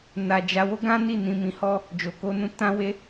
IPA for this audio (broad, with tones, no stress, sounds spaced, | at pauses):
n a˧ d͡ʒ a˧ w o˦ ɡ ã˦ n i˦˨ n ĩ˧ m ĩ˧ h ɔ˦ | d͡ʒ o˧ k o˦ n ũ˦ t ã˦ w e˦